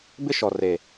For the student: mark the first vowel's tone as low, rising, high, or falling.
high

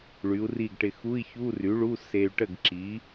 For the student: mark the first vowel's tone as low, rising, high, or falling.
rising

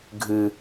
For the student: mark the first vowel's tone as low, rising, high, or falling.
high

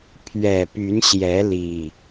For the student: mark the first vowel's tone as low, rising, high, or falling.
low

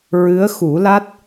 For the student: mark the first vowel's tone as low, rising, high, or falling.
rising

